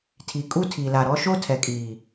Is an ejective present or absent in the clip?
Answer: present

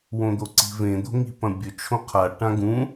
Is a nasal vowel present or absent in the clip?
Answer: present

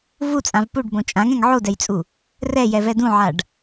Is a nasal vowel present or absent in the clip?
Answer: present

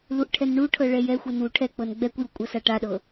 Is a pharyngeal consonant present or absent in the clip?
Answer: absent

